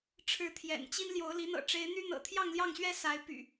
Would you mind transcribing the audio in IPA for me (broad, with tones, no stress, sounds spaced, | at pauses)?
ʈ͡ʂʰ ɻ̩˨˦ t̪ʰ j ɛ̰˨˩ n t͡ɕ i˦ n l j o˨˦ ʊ̯ l i˨˦ n̪ ɤ̰˨˩ ʈ͡ʂ e˨˦ ɪ̯ n̪ y˦ n̪ ɤ̰˨˩ t̪ʰ j ɑ˥˨ ŋ l j ɑ˥˨ ŋ ɕ ɥ ɛ˦ s a˨˦ ɪ̯ p y̰˨˩